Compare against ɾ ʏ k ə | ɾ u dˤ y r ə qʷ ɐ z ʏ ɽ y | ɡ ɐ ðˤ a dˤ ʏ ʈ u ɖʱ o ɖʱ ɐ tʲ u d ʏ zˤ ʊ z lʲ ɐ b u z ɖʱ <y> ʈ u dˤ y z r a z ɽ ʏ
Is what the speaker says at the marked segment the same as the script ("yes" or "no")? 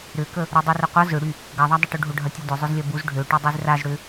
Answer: no